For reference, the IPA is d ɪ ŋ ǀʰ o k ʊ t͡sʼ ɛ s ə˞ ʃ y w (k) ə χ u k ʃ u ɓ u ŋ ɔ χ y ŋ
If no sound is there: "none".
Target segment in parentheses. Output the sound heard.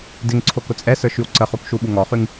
ǀ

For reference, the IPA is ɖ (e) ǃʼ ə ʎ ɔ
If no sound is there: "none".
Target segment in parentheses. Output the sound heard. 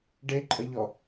e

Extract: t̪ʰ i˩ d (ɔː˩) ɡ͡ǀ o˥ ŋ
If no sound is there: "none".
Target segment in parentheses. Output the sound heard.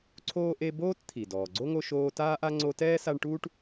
ɔː˩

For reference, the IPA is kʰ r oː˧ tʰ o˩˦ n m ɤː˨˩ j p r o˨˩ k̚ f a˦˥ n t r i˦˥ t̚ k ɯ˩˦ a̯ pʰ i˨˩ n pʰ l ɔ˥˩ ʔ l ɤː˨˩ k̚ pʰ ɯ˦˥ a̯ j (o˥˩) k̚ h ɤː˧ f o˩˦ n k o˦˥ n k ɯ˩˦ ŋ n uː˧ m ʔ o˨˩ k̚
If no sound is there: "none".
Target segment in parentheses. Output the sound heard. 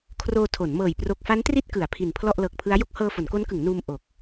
o˥˩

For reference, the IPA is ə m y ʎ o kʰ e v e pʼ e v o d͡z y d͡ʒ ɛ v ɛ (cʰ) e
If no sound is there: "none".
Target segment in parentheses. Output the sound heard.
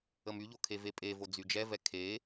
kʰ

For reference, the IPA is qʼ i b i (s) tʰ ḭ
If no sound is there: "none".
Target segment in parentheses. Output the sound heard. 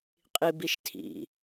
ʃ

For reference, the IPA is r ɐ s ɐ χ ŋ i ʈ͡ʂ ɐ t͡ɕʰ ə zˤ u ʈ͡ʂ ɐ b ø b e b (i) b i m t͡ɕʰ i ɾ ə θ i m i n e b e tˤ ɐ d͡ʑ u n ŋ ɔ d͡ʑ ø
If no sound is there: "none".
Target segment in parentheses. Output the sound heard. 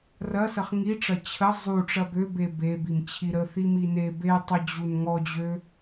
e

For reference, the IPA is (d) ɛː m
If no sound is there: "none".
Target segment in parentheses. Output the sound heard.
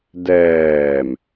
d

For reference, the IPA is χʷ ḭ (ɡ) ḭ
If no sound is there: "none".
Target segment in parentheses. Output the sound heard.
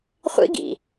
ɡ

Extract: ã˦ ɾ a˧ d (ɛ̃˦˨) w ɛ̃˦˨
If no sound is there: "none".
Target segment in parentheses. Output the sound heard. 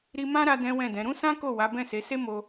ɛ̃˦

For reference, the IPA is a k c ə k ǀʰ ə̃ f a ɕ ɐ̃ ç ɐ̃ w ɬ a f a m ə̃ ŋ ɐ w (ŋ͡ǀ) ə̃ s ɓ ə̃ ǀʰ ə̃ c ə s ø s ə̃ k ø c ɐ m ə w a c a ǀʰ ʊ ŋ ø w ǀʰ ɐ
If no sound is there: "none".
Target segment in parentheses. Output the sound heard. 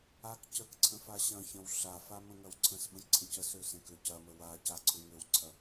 ǀʰ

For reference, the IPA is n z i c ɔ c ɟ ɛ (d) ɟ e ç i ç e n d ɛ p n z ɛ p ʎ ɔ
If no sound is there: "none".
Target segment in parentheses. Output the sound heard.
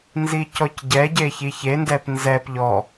none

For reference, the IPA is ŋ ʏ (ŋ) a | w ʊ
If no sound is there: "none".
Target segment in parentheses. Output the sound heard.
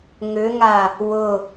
ŋ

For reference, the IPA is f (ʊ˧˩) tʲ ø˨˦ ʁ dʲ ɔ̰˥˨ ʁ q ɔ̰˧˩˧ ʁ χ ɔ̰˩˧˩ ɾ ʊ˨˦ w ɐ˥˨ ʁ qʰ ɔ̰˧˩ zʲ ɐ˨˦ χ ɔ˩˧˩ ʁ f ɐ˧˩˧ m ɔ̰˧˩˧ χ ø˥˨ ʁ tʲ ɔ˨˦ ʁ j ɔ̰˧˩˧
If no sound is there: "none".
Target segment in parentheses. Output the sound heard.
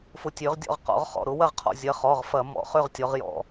ʊ˧˩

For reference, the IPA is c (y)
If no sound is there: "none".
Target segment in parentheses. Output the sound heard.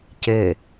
e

